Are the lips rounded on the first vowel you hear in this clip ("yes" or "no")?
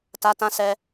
no